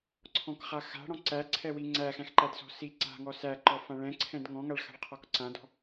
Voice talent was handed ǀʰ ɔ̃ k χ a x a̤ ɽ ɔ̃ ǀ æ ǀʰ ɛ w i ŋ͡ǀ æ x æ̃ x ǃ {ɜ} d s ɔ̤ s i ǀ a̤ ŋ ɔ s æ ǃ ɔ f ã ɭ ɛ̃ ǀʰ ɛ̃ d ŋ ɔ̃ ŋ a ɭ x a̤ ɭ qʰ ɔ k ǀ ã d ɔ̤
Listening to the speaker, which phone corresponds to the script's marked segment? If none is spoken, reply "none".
æ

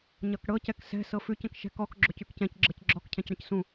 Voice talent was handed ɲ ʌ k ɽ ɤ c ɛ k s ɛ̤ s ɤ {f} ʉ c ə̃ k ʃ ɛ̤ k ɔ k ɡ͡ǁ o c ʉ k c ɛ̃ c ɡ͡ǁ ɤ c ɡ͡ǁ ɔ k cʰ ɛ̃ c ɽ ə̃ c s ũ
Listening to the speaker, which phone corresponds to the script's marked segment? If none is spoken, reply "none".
f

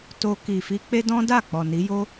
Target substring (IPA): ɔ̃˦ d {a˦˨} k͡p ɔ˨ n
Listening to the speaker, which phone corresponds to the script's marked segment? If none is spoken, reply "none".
a˦˨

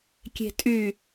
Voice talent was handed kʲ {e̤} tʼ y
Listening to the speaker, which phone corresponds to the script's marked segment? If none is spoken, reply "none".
e̤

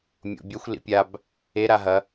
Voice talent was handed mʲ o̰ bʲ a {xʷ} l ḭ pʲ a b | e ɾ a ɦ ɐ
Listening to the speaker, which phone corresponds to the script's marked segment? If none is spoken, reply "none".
xʷ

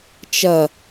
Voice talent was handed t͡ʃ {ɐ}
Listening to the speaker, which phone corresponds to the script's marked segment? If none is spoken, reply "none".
ɐ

